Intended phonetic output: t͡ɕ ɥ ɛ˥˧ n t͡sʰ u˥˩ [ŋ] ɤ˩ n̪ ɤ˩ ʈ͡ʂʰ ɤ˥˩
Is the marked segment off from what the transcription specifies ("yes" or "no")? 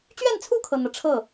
yes